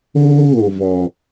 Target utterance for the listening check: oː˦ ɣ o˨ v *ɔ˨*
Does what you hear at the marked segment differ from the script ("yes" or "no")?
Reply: no